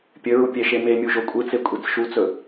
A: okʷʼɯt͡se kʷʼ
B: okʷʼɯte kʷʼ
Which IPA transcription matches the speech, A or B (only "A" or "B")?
A